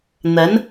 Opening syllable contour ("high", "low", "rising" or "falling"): rising